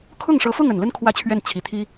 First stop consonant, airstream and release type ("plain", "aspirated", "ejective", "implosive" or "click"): aspirated